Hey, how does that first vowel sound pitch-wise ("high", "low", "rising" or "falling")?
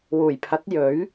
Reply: low